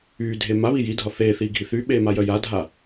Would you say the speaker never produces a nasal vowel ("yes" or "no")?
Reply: yes